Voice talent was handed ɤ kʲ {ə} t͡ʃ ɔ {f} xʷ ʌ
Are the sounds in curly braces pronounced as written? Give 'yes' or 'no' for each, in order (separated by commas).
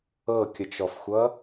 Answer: yes, yes